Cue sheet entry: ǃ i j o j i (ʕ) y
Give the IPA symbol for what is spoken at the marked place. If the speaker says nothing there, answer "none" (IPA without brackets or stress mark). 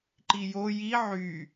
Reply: ʕ